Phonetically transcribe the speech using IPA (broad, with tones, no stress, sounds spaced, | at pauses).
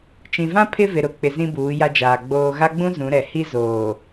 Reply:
t͡ʃ ĩ˨ v ã˦ pʰ ɪ˦ v ɪ˨ ɾ ʊ˨˦ k͡p ɪ˨ z ĩ˦ b uː˨˦ j a˦ d͡ʒ aː˨ ɡ͡b oː˨ ɣ a˦ ɡ͡b ũ˦ z ũ˨˦ ɾ ɛ˨ h i˦ z oː˨